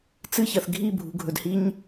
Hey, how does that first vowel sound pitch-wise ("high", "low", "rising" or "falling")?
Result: high